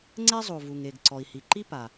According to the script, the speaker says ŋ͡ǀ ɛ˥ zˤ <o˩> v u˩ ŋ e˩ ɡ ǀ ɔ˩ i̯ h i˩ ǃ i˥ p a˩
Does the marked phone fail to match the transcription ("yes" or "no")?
no